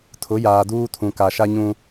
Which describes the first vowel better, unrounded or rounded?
rounded